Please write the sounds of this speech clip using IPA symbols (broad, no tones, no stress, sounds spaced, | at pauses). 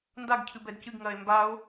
n d a ɡ cʰ ɨ b ɛ d c ɨ ɡ ŋ ɐː e̯ m b a o̯